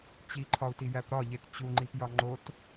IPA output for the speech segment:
t͡ɕiǃʰɒu̯tijæp ɾɒʎet t͡ɕuŋ͡ǃipjɒ ŋ͡ǃot

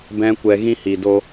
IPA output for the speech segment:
bɛ̃˦ kʷɛ˧ɣĩ˦hi˨ do˧

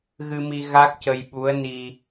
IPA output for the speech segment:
ɣɨ˧mi˧ ɣa˦˥k̚cə˧j ɓu˧˥ə̯ni˧

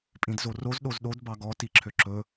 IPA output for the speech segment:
pʼĩdzoroz ɗozɗod bɑɡɔ tiǁʰøǁɵ

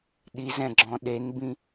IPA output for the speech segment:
ɗizɛ̃ ɡ͡ǁɔ̃ɗenbĩ

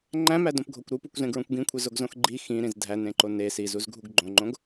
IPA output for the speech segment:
ŋ͡ǃæ̃mædõpɡʱokʷ ɾupukʷzẽɡɹõkʷ ɡĩkʷʰizoɡzõx ɡ͡ǃi xĩɾĩz dʱænẽǃo ne sizuzɡʱuɡ ɡ͡ǃõŋ͡ǃõɡ

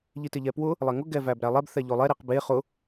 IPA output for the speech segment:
ʎitɪʎɛpwʊ | lˠɛŋʊ ɡɛvæbɾælˠɛb θɛʎʊlˠɛ ɾiqbe χʊ

